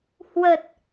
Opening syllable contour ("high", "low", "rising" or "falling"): low